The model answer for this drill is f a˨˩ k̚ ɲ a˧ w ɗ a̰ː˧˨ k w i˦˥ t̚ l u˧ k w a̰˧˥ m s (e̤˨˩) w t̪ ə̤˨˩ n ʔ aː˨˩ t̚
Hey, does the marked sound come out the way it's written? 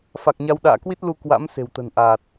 yes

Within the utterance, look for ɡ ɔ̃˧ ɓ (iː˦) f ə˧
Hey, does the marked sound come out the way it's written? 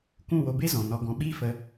yes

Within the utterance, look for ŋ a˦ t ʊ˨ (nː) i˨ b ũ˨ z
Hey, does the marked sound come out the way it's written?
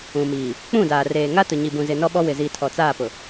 no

